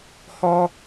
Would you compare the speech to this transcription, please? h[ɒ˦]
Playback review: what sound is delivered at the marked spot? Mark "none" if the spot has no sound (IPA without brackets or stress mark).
ɒ˦